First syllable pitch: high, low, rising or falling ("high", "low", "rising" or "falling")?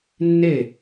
falling